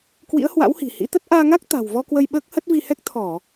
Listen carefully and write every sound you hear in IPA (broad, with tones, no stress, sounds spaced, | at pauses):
k w ḭ˧˥ ə̯ h w a̰˧˥ w h i̤˨˩ h ḭ˧˥ t̪ ə˦˥ t̚ ʔ aː˧ ŋ a˦˥ k̚ t̪ a̤˨˩ w v ɔ˧ k w ə˧ j ɓ əː˦˥ k̚ h ə˦˥ t̚ v i˧ h ɛ˦˥ k̚ t̪ʰ ɔ˧˩˨